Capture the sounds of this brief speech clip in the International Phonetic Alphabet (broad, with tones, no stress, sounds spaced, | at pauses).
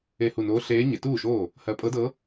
e˧˩ h u˧˩ n oː˧˥ ɬ eː˧˥ ɲ e˩˧ t uː˥˩ ʃ oː˥˩ | h ɜ˧˥ pʼ ɤ˧˥ d ɤ˧˥